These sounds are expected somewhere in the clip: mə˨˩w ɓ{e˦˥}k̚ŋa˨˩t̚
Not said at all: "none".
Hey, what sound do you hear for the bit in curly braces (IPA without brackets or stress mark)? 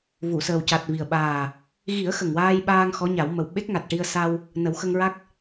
e˦˥